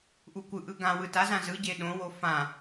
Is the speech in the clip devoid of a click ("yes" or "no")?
yes